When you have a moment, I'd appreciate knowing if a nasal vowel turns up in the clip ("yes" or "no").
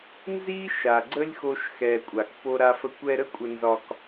no